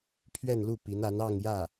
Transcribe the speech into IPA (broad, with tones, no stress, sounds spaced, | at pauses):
pʰ ɥ ɛ˥˧ n l u˥˩ p i˧˥ n a˧˥ n ɑ˥˧ ŋ j ä˥˩